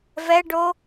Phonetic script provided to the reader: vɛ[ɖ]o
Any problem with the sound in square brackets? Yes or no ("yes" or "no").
no